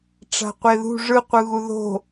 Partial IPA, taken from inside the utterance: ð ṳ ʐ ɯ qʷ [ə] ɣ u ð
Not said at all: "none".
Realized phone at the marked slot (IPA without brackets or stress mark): ɯ